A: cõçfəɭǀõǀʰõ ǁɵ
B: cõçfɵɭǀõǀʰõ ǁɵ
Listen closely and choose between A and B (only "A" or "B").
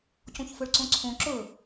B